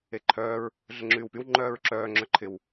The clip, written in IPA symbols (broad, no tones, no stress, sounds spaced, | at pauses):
e ǃʰ œː ɹ | ɮ ə ŋ͡ǁ yː w p y w ŋ͡ǃ œː ɹ ǁ œː ŋ͡ǁ œ ǃʰ ɪ w